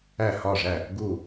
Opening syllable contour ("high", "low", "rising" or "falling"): falling